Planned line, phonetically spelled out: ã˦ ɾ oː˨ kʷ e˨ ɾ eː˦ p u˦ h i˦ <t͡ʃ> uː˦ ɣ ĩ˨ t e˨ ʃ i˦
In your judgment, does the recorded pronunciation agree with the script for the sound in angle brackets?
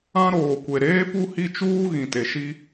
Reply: yes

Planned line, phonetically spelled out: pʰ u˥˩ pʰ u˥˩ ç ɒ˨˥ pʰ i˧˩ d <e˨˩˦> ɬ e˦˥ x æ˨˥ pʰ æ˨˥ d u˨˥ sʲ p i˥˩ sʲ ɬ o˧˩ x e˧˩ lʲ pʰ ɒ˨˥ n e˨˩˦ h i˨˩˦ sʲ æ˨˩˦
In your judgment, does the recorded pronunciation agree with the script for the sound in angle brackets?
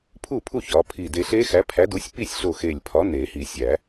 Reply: no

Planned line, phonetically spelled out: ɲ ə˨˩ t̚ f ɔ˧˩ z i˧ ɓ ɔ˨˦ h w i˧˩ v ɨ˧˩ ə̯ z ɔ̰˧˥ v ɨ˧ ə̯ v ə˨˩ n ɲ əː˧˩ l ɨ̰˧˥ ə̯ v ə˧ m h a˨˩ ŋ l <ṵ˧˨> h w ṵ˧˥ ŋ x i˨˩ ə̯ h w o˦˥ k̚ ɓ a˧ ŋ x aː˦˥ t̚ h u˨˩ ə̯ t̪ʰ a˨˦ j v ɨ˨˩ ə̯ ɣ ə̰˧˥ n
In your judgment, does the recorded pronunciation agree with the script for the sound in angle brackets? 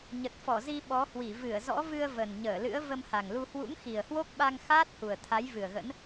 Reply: no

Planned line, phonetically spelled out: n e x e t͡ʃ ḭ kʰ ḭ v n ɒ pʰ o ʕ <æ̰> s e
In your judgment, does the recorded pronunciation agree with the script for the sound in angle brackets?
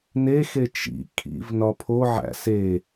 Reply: yes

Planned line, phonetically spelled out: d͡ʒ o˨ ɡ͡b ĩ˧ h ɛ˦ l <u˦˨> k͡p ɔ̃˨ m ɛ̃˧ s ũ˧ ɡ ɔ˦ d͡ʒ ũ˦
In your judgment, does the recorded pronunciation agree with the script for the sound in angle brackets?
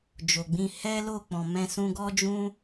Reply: no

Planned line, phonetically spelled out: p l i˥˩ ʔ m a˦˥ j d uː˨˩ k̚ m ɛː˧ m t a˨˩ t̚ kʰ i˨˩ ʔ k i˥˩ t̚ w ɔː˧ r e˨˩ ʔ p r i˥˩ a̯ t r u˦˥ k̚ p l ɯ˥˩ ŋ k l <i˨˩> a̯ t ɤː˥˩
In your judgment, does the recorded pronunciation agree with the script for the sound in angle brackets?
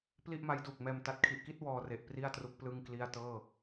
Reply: no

